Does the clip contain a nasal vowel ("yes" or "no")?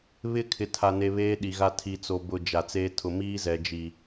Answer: no